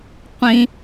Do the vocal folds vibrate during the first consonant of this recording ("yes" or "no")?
no